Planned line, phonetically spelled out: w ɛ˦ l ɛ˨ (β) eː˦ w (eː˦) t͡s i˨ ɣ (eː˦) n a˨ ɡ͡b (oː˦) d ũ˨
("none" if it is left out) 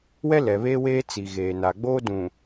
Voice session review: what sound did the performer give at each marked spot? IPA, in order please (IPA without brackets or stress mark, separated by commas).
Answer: β, eː˦, eː˨, oː˦